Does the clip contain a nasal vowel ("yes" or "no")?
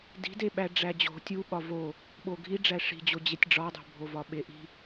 no